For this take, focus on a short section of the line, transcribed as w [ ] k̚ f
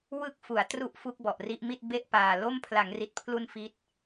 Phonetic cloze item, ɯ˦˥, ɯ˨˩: ɯ˦˥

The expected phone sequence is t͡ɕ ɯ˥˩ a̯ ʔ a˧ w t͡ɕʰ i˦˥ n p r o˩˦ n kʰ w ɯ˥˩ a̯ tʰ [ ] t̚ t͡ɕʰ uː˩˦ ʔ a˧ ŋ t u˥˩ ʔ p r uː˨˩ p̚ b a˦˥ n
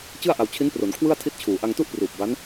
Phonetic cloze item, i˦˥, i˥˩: i˦˥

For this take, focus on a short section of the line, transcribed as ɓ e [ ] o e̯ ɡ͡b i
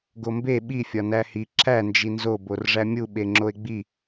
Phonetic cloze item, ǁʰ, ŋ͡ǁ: ŋ͡ǁ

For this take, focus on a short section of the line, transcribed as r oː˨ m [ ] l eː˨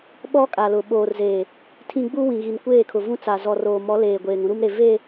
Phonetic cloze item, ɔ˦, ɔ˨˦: ɔ˨˦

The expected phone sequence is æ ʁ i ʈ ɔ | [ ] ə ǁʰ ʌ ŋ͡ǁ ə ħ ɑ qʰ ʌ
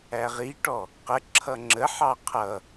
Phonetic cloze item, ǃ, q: q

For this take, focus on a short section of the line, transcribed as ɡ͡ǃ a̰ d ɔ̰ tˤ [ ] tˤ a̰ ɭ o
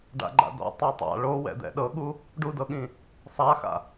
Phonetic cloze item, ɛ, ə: ɛ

